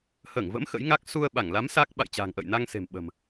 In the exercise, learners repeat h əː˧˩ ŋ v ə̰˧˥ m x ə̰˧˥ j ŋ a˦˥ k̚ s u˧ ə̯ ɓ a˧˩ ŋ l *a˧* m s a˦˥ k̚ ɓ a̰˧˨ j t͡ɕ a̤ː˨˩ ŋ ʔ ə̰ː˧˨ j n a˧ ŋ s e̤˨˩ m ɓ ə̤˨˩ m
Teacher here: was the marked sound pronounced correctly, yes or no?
no